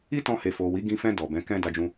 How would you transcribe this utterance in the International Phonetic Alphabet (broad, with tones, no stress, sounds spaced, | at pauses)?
i˦ t ɔ̃˧ h e˨ f o˨ w i˨˦ ɡ ĩ˧ f ɛ̃˧ d ɔ˨ b ɛ̃˨˦ k ɛ̃˦ d a˧ d͡ʒ ũ˧